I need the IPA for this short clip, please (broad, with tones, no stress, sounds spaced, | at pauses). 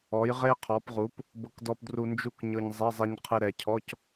ɔ˩˧ j ʁ e˧ qʰ ɔ˩˧ p ʁ u˩˧ p | b ɤ˧ k d ɔ˧ p d r u˧ n d͡ʒ u˥˨ k ɲ ɤ˧ ɲ zˤ ɛ˧˥˧ zˤ ɛ˧ ɲ qʰ ɨ˧ ɾ ɛ˩˧ cʰ ɔ˧˥˧ c